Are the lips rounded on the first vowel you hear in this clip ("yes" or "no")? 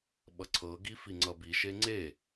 no